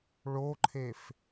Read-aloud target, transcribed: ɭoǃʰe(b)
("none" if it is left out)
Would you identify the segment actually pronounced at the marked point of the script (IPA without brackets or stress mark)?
f